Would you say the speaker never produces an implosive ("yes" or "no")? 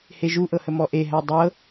yes